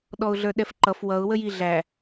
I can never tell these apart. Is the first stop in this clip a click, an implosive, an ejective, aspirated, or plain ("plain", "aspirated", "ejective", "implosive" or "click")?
implosive